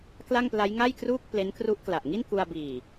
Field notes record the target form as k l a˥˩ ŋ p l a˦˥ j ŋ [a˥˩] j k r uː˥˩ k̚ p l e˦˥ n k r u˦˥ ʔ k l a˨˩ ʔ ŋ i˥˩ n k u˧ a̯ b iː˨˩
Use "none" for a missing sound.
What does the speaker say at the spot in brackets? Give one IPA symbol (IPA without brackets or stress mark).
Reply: a˥˩